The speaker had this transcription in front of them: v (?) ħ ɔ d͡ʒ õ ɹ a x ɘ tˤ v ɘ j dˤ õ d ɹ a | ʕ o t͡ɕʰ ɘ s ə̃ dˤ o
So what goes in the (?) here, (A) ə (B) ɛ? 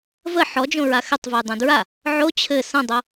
A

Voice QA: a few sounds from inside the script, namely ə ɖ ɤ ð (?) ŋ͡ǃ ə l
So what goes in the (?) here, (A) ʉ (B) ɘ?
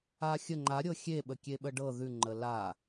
A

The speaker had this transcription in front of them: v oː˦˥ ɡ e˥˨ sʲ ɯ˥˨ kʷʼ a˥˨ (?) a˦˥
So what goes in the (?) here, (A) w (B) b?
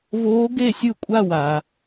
A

